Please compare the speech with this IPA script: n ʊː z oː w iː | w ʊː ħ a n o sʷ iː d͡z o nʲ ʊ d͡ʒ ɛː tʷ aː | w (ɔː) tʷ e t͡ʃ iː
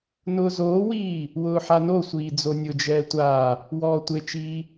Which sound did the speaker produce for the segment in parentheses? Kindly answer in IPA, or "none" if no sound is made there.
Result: ɔː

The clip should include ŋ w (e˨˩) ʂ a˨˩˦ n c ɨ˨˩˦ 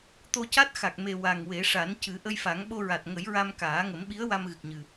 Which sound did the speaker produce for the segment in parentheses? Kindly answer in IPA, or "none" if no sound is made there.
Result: e˨˩˦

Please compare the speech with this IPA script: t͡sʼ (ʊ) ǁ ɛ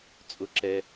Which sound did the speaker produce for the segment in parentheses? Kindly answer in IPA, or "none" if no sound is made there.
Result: ʊ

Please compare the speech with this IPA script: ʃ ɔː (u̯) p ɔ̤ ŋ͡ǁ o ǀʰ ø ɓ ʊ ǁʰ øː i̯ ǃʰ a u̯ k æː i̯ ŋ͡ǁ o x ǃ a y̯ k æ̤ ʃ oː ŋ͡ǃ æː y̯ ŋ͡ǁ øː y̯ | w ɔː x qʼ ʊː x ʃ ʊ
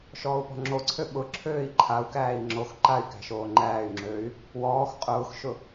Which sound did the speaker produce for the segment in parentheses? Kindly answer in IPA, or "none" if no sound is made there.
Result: u̯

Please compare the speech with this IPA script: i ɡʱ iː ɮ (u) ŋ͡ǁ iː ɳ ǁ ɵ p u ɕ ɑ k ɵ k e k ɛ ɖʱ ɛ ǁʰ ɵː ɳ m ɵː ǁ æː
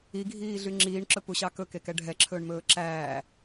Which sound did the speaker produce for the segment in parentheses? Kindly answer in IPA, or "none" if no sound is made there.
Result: y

